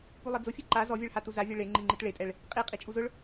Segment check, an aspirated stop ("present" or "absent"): absent